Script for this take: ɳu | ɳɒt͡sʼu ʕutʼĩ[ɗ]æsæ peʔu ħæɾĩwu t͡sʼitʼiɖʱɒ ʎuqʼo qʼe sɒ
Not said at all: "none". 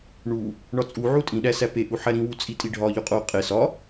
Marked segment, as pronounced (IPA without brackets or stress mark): ɗ